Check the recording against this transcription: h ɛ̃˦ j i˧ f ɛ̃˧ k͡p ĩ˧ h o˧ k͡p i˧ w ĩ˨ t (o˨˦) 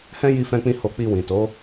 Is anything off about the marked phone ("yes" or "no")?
no